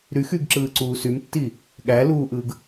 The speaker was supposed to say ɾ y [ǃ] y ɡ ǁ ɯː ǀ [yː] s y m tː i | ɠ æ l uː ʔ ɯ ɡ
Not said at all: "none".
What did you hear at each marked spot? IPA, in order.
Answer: x, uː

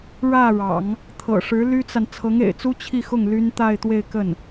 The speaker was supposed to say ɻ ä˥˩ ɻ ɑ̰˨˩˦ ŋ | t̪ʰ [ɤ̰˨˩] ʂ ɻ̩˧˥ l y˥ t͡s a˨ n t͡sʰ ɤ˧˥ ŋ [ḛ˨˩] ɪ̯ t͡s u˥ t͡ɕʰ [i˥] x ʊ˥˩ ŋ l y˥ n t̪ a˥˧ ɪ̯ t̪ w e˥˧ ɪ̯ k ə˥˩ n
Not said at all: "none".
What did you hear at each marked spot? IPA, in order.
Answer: ɤ̰˨˩, ḛ˨˩, i˥˧

